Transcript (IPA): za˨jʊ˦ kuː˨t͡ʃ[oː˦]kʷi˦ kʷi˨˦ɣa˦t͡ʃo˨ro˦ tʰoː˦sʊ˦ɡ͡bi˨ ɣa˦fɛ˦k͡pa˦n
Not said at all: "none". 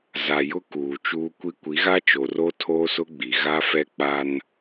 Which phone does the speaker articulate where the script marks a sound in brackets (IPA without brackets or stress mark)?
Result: uː˦